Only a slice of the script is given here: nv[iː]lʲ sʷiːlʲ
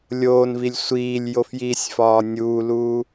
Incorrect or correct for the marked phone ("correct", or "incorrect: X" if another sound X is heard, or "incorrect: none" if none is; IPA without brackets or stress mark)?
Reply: incorrect: i